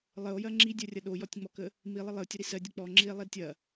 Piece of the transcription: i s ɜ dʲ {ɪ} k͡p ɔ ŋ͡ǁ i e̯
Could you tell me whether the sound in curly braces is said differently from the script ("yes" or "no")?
yes